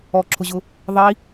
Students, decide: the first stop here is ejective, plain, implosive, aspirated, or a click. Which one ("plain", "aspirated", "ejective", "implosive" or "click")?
click